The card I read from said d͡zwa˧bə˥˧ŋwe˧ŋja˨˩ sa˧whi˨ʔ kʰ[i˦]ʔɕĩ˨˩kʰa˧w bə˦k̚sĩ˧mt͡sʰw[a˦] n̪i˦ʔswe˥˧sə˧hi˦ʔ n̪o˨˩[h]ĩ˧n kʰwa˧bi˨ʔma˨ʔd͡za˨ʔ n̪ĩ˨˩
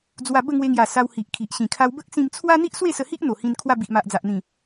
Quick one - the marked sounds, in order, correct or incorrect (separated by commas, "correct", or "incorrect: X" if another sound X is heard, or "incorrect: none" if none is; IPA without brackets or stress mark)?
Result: incorrect: i˨, correct, correct